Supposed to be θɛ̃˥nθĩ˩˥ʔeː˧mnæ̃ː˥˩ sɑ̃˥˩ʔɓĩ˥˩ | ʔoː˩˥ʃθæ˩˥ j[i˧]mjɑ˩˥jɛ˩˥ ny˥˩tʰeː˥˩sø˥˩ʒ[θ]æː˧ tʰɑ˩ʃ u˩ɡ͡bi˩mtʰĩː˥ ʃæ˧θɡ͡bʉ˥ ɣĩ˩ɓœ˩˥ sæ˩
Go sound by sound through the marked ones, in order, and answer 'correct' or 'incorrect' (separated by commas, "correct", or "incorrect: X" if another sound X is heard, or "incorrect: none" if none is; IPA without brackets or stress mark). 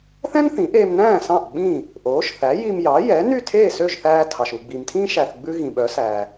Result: correct, correct